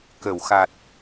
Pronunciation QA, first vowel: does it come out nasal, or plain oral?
oral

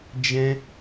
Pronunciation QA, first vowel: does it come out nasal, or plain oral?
nasal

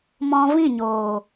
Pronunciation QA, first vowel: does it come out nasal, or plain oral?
nasal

